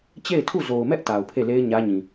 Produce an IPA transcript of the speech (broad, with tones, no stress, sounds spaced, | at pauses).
t͡ɕ e˦˨ ɪ̯ tʰ u˦˨ z o˨ ʊ̯ m ɛ˦ ʔ t a˨ ʊ̯ pʰ e˦˨ l e˦ ɪ̯ ɲ ä˦ ɲ ĩ˨